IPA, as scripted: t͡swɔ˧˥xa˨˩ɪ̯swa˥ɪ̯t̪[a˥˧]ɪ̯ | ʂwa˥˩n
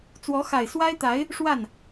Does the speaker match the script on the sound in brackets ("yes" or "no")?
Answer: no